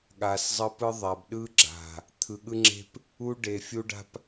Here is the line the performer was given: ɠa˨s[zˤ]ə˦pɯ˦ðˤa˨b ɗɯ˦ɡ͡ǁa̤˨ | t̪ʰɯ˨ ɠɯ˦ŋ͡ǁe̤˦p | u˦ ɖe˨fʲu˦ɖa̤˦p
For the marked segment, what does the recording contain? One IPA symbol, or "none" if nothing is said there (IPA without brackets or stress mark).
zˤ